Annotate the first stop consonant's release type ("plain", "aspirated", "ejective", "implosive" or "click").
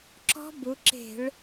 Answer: click